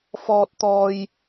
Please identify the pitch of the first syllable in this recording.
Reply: high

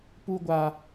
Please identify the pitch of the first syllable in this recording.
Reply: high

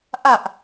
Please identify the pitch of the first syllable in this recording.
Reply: low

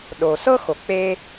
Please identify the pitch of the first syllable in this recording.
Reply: low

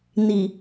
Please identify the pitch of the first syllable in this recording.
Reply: low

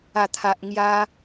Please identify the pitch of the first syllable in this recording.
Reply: low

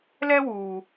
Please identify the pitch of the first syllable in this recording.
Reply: high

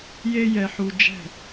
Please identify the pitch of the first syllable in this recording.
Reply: high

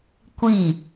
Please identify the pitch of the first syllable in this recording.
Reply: falling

